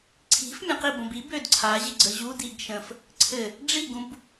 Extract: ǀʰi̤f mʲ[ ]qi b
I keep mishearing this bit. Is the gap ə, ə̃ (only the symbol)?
ə̃